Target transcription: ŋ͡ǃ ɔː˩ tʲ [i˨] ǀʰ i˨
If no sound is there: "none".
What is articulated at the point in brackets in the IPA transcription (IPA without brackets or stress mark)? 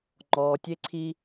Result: e˨